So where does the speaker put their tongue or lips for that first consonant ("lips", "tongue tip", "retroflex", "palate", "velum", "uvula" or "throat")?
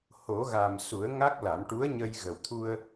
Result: throat